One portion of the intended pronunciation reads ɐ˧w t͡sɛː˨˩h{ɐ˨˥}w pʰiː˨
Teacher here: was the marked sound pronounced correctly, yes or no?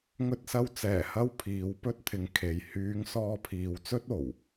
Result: no